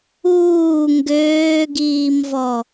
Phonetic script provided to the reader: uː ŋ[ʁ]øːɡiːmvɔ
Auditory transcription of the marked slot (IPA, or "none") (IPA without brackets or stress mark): ɡ